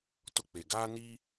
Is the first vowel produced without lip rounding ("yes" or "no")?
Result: no